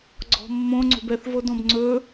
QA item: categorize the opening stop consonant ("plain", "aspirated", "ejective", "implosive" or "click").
click